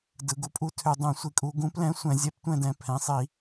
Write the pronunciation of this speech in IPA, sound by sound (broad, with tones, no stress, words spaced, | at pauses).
dɯ˩˧ɡu˩˧pʼu˦˨tʰʏ˧˩˧ dˤũ˧˩˧sʷi˨˥kʼu˨˥ ɡũ˨˥plɛ̃˨˥ sʷɛ̃˧˩˧zʲɛ˨˥ptʷɛ̃˦˨dɛ̃˩˧˩ pʰɛ̃˩˧˩sˤi˧˩˧